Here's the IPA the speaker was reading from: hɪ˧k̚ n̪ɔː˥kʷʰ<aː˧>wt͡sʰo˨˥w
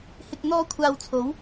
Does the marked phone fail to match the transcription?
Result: no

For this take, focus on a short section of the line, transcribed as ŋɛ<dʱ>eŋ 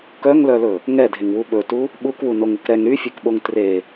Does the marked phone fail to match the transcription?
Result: no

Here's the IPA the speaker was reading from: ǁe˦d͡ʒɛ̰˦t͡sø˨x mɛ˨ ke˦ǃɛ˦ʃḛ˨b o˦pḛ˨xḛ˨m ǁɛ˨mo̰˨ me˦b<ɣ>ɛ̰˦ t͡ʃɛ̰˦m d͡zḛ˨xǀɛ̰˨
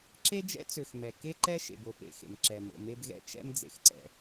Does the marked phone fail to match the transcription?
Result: no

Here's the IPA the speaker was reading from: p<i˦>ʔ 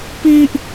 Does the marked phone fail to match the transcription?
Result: no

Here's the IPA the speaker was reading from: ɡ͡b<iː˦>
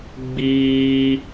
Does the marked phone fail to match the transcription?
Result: no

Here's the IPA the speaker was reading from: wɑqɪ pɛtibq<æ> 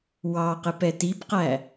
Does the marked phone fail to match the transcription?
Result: no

